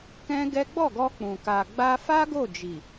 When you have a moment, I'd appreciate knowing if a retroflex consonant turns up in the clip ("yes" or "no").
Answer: no